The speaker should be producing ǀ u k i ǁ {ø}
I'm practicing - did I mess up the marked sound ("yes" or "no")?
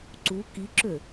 no